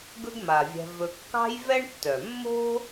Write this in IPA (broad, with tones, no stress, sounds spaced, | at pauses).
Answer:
ɡ ɵ˦ ɡ m a˩ vʲ ɛ̤˨ v ɵ˨ kː ɑ̤˥ j v ɛ˥ ɳ tː œ˩ mː o̤˦